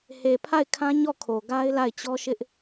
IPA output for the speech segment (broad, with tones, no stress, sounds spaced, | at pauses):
h e˨ pʰ a˦˨ ɪ̯ kʰ ã˦ ɲ ɔ˦˨ kʰ o˨ ɡ a˦ ɪ̯ l a˦˨ ɪ̯ t͡ɕ ɔ˦ ʃ ɪ˦ ʔ